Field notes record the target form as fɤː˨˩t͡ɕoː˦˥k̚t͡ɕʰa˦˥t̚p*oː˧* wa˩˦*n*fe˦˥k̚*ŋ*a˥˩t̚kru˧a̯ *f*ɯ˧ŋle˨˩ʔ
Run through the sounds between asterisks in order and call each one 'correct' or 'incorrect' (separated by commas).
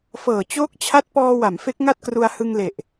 incorrect, incorrect, correct, incorrect